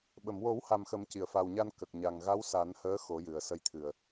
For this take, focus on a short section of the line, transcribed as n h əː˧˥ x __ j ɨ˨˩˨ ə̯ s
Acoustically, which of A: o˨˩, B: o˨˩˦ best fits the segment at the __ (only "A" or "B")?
B